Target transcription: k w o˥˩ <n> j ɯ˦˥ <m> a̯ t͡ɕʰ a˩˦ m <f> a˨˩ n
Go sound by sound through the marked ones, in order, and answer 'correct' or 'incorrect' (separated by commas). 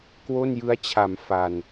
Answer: correct, incorrect, correct